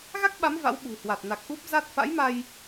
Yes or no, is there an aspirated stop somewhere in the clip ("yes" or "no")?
no